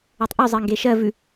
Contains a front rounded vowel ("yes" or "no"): yes